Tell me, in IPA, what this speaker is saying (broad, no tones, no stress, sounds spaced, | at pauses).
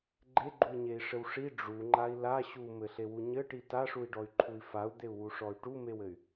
ɡ͡ǃ e ɡ͡ǃ u i̯ ɲ e i̯ ʂ ɘ w ʂ i ɖ͡ʐ u ŋ͡ǃ a i̯ l a ɕ u m ɘ ɬ e w u ɲ ɘ ʈ i t a ʂ u i̯ ɖ ɔ y̯ ǃʰ u i̯ f a u̯ d̪ e u̯ w u ʂ ɔ y̯ ʈ u m e w ɘ y̯